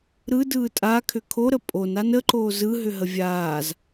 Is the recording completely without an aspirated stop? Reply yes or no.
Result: no